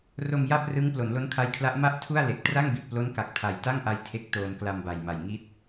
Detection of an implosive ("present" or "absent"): absent